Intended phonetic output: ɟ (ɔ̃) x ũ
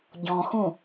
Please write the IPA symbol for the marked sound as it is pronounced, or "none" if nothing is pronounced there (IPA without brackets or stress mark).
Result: ɔ̃